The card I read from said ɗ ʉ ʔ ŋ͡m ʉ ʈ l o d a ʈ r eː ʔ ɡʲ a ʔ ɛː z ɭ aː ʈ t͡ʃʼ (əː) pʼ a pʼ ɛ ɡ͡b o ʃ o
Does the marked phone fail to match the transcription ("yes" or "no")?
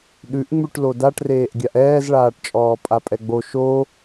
yes